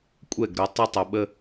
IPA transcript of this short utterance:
kʷʼ ɛ˧˩ ɡ ɾ ʊ˩˧ tˤ ə˧ tˤ ʊ˩˧ ɓ ə˧

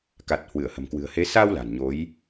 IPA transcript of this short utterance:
k a˨˩ t̚ h w ɨ˧˩ ə̯ h ə̤˨˩ m k w ɨ̤˨˩ ə̯ h e˨˦ s a˧ w l a̤˨˩ n ɲ o˨˦ j

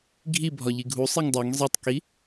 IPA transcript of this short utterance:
ɡʱ i bʱ ɒ ʎ i ɡʱ u sˤ i ŋ dˤ o ŋ zˤ i tˤ k i

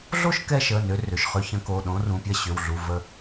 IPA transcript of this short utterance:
ɮ o˥˨ ʃ k ɛ˧ ʃ ə˩˧˩ n ʏ˨˥ r ʏ˩˧˩ ʃ χ ø˧ ç ə̃˨˥ k o˩˧˩ ɗ õ˨˥ r ũ˩˧˩ pʲ ɐ˥˨ ɕ ʏ˩˧˩ w ɮ u˩˧˩ v ə˧

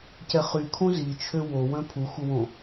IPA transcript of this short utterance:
c ɛ χ y kʰ õ z i t͡ʃʰ ø w o w œ̃ pʰ u x u w õ

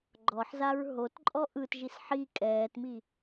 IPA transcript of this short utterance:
ɡ͡ǃ ɔ ħ z a ɹ ɦ o t ǃʼ ɔ ʔ ɯ t ʒ i s ħ i kʼ ɛː t m i

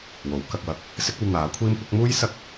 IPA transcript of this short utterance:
w o˨˥ w k ɐ˧ k̚ w ɐ˧ k̚ | s ɪ˥ k̚ ɐ˧ w n̪ aː˨˥ kʷʰ iː˥ m kʷ ɐ˥ k̚ m uː˥ j s ɐ˥ k̚

